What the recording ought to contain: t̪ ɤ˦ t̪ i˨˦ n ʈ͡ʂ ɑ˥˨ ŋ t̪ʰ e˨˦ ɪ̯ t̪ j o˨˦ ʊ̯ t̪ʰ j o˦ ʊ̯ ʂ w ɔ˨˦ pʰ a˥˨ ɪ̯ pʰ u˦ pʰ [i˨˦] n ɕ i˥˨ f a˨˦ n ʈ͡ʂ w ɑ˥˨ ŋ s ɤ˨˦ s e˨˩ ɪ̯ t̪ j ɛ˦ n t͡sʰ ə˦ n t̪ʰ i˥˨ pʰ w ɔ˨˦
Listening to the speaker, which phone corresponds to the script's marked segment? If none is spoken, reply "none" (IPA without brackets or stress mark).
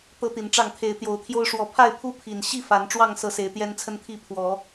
i˨˩